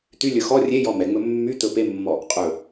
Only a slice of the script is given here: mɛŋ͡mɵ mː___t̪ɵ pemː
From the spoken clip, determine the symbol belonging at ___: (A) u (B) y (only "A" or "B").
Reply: B